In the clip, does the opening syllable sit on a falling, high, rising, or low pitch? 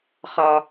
low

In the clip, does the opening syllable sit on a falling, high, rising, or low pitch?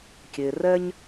low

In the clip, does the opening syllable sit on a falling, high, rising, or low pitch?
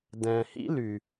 low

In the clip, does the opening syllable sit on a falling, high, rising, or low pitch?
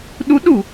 rising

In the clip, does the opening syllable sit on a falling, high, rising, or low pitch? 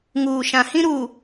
low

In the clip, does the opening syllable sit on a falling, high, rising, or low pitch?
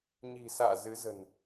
low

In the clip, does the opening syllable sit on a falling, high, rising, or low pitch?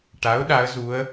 rising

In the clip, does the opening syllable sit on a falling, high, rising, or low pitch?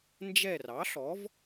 falling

